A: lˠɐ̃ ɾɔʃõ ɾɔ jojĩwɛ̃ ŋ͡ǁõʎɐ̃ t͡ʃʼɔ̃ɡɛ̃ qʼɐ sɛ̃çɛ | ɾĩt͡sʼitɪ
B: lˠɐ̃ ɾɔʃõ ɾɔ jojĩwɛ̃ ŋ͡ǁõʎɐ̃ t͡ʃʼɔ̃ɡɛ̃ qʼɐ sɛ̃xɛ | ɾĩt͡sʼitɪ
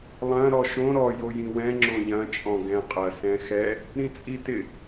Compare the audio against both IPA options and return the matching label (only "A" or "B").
B